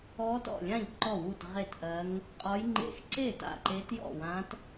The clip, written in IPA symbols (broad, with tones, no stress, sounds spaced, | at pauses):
ɔ˧˥ t ɔ̰˥˩ lʲ ã˥˩ ʎ ǃ ɔ˥˩ w u˥˩ t ʁ e˥˩ t ʔ ɜ˧˥ ŋ | qʼ ɒ˧˥ j ŋ͡ǃ ḛ˧˥ x ǀ e˥˩ t a̰˥˩ ǃ e˧˥ t j ɔ̰˥˩ w ã˧˥ t